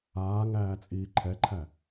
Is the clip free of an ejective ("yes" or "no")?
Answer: no